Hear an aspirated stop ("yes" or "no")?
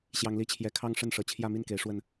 yes